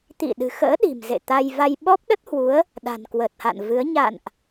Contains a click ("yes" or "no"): no